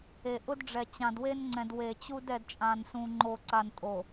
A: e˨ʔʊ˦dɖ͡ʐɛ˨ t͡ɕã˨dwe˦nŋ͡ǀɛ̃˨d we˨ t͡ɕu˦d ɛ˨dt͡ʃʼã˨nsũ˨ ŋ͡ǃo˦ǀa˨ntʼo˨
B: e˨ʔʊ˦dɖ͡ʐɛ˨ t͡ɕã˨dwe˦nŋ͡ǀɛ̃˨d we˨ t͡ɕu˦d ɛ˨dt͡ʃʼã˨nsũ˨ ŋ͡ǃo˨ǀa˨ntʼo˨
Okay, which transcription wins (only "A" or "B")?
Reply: B